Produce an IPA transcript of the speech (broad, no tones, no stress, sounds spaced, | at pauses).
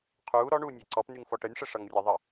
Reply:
qʰ uː ɾ ɔ ɳ uː nʲ ɛ ǀ ɔ p n y ŋ f ɔ ʈ ə nʲ ʂ ə ʂ ʌ ŋ rʲ ʌ ðˤ ʌ